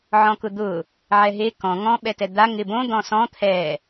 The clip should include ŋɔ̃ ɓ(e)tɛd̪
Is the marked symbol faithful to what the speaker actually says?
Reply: no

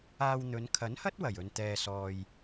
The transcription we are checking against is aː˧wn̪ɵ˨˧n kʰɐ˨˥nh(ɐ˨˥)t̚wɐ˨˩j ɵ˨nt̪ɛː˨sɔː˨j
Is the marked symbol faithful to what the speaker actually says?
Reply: no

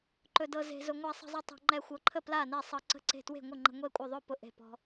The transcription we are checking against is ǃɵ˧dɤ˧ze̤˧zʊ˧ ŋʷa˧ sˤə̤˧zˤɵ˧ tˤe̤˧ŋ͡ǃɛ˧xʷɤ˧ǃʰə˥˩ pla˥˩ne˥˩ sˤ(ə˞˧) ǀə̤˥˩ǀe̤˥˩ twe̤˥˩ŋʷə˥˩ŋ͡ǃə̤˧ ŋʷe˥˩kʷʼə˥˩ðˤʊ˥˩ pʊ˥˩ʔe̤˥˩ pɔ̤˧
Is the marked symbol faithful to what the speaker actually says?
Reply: no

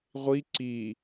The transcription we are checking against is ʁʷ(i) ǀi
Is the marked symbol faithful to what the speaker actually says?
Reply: yes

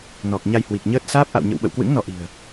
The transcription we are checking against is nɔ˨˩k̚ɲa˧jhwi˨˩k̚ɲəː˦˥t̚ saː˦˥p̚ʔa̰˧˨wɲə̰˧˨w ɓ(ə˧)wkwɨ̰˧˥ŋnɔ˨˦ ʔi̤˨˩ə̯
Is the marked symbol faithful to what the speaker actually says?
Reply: no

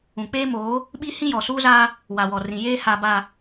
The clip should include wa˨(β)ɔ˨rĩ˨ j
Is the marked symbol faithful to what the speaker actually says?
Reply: no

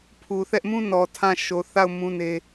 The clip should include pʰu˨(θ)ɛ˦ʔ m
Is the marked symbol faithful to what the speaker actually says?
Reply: yes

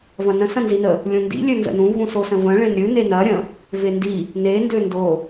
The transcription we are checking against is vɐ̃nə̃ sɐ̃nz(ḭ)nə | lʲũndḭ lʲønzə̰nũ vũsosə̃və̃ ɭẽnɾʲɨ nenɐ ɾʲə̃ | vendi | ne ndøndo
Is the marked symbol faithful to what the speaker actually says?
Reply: no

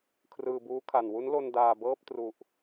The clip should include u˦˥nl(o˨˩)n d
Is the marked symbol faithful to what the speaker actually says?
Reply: no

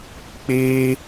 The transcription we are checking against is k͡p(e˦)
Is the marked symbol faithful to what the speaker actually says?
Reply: yes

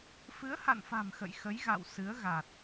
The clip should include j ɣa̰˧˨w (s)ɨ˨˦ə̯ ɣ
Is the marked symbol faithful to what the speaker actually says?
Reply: yes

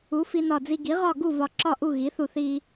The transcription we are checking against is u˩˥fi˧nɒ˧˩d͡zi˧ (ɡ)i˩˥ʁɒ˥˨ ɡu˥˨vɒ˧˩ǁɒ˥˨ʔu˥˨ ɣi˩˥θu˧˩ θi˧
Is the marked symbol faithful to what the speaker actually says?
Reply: yes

